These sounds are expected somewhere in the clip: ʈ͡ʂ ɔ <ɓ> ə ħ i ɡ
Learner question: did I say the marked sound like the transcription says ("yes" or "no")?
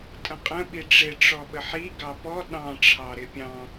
yes